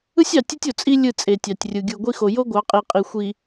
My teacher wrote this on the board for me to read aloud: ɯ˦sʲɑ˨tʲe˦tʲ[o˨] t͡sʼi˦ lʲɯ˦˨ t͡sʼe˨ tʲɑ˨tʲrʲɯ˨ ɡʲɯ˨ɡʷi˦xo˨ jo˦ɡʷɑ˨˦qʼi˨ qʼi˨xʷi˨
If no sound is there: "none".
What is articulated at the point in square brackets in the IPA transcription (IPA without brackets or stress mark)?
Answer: o˨